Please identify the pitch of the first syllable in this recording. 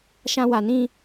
high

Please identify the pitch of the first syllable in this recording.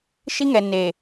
high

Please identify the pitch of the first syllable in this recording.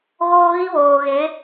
high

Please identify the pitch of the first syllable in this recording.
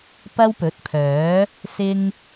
high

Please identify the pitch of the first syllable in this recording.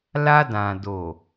high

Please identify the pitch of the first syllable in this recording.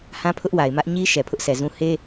high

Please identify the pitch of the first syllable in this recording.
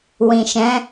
low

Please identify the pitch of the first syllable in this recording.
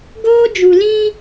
high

